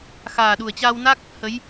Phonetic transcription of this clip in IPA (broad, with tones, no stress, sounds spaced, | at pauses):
x aː˨˩ ɗ u˨˩ ə̯ t͡ɕ aː˧ w n a˦˥ k̚ | h ə˨˦ j